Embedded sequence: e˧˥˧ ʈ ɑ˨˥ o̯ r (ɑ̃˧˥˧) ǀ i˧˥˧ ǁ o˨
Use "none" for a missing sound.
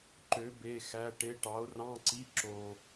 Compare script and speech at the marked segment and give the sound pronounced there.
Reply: ɑ̃˧˥˧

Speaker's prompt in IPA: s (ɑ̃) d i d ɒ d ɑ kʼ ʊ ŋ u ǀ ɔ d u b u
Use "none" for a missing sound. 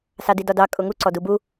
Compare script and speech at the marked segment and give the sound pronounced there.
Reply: ɑ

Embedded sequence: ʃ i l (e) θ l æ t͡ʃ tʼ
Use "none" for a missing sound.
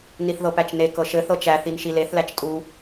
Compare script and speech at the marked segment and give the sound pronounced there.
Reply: e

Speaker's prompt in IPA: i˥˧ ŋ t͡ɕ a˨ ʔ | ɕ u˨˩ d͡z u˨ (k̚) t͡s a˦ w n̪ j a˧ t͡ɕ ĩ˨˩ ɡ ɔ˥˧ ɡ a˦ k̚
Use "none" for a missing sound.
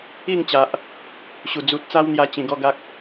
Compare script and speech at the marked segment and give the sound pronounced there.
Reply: t̚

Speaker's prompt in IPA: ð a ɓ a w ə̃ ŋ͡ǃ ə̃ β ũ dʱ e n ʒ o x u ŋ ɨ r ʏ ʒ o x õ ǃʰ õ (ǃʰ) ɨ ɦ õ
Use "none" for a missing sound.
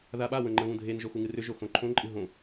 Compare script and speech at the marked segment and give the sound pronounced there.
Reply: ǃʼ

